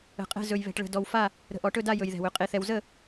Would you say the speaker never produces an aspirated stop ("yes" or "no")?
yes